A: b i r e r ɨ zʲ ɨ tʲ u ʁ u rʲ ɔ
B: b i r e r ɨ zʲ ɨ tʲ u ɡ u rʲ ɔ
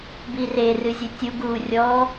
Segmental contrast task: B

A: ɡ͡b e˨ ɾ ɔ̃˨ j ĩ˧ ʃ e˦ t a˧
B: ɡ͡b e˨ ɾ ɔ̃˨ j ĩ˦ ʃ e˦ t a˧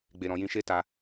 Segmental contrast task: A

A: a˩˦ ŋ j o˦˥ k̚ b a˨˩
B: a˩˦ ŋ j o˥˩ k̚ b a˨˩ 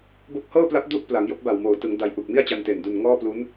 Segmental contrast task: A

